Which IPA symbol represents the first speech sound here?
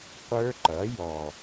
qʷ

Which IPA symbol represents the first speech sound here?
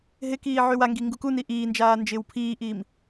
ɦ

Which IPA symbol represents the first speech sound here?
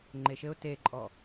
ŋ͡ǃ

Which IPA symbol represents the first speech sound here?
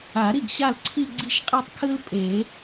a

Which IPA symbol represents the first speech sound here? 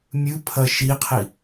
mʲ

